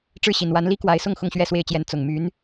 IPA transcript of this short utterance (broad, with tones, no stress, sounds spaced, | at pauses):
ʈ͡ʂ ɻ̩˥˩ ɕ i˨˩ n w a˧˥ n l i˥ k w a˧˥ ɪ̯ s ʊ˥˧ ŋ x ʊ˥˧ ŋ ɕ ɥ ɛ˥˧ s w e˥˩ ɪ̯ t͡ɕ j ɛ˧˥ n t͡s ʊ˨˩ ŋ m y˧˥ n